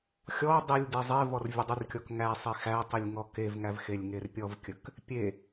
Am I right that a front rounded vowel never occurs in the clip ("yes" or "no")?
yes